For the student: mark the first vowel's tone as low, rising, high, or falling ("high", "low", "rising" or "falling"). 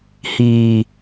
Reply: low